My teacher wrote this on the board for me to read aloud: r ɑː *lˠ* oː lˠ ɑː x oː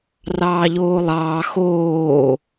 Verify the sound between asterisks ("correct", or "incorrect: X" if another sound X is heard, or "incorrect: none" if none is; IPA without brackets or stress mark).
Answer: incorrect: ʎ